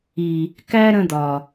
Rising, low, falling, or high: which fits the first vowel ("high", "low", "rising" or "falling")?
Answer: low